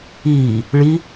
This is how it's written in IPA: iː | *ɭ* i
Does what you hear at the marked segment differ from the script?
no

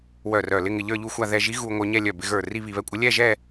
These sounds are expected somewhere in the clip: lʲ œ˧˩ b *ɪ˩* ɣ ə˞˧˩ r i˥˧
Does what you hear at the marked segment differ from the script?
yes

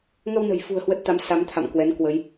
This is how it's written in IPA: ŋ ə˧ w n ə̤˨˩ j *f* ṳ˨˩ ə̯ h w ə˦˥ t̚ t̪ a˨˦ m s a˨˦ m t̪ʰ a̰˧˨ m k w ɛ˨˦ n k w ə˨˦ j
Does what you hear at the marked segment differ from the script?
no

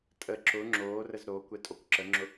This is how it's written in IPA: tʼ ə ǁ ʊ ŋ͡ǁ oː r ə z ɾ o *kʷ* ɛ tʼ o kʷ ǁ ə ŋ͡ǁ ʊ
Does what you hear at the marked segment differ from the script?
no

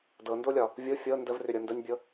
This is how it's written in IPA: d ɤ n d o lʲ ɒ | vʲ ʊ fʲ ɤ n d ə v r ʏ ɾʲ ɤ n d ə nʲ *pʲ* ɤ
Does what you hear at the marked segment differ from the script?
yes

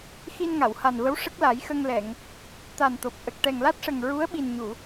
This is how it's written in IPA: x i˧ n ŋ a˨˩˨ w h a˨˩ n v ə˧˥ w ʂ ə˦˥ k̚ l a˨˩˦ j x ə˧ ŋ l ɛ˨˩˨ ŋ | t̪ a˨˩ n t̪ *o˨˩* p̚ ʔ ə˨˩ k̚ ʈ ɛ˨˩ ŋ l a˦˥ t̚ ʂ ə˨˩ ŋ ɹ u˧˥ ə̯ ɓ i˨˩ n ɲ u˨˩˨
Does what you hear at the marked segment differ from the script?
no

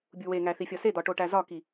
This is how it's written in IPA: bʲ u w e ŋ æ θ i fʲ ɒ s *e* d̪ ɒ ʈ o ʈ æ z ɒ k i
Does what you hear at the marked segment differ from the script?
no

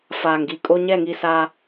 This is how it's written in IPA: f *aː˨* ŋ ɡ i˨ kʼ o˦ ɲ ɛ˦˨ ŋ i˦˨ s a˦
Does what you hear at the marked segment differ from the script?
no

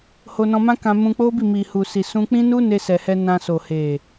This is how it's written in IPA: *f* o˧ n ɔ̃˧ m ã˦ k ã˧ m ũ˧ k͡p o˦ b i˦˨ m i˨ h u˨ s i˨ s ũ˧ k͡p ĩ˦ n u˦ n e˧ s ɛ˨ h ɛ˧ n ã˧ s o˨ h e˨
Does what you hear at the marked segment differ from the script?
yes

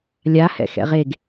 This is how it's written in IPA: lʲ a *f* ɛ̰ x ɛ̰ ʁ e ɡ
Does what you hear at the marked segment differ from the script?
yes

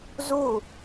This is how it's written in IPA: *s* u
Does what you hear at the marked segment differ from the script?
yes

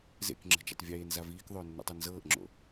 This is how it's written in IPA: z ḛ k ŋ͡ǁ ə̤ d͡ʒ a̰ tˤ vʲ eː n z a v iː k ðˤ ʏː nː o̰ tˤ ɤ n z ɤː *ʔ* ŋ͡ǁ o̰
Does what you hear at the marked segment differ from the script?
no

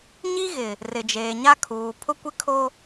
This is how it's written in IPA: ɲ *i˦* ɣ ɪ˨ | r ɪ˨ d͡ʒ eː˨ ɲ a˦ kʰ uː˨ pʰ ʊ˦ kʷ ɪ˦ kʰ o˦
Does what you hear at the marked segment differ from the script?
no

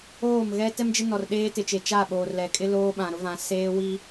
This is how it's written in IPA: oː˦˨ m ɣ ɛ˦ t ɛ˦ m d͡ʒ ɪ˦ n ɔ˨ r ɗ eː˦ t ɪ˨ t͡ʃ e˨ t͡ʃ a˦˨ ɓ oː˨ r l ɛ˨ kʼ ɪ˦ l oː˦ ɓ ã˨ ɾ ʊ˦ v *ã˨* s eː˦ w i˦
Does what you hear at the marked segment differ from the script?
no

